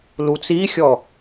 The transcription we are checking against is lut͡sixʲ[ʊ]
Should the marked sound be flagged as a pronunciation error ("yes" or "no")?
yes